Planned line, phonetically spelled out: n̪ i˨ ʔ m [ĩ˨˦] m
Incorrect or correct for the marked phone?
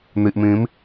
correct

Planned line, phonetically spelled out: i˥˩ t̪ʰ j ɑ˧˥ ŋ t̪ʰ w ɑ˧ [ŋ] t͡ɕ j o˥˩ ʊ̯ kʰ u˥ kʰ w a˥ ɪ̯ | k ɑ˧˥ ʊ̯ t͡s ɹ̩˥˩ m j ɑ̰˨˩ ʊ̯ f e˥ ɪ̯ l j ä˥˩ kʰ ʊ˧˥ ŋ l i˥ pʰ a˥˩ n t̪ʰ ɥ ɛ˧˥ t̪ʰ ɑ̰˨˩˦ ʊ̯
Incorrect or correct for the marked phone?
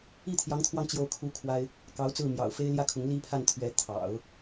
correct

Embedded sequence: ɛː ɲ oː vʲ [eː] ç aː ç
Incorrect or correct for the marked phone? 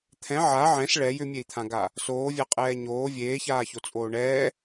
correct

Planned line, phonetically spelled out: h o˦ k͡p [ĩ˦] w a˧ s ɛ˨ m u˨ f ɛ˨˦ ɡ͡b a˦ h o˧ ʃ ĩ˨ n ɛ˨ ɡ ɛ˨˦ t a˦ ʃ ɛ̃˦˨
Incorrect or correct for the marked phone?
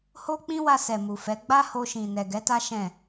correct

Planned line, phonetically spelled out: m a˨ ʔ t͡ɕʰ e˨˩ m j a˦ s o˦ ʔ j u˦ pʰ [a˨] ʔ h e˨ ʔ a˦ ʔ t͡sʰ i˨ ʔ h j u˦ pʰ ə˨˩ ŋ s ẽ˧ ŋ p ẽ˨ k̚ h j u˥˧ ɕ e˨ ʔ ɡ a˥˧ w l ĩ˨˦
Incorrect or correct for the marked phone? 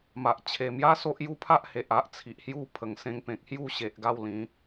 incorrect: a˦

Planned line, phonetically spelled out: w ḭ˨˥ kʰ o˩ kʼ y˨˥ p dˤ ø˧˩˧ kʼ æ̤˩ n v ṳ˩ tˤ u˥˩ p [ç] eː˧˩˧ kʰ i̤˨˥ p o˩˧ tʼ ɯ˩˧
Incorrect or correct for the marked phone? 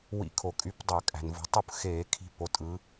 incorrect: x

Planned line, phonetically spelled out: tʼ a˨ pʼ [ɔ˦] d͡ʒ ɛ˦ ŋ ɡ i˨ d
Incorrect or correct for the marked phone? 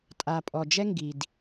incorrect: ɔ˨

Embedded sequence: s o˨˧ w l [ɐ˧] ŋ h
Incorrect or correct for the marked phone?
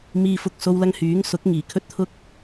correct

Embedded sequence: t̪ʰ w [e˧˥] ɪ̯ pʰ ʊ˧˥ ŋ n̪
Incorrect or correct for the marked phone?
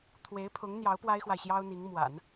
correct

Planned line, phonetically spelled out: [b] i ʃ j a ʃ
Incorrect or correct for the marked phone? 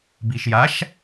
correct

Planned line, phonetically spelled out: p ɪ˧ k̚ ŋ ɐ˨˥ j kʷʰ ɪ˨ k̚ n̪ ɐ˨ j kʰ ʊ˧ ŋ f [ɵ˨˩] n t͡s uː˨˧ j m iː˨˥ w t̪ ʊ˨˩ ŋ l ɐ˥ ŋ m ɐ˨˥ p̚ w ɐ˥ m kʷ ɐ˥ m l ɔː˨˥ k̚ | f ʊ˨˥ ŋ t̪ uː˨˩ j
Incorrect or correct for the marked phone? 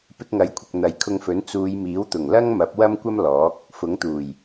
incorrect: ɵ˨˥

